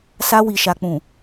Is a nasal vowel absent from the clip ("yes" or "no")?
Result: no